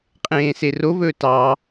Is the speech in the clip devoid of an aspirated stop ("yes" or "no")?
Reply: yes